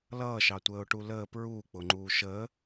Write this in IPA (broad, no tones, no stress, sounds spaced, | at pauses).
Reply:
l ʌː ʃ ɑ tʷ əː ʊ̯ ʈ u l əː p ɹ uː k͡p ʊ ŋ͡ǃ uː ʃ əː